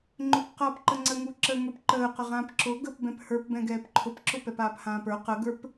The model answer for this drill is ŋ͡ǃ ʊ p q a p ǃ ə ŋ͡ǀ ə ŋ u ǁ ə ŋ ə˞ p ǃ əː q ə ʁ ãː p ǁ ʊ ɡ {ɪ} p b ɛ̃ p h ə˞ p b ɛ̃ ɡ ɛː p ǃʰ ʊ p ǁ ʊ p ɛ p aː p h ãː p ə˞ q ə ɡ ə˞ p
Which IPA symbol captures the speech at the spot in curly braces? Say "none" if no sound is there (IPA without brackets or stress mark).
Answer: ə